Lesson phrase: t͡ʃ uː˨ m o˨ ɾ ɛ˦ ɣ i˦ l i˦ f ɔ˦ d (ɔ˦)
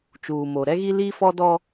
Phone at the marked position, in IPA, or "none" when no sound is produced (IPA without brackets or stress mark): ɔ˦